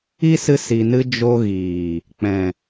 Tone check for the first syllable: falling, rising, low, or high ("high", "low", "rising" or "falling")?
high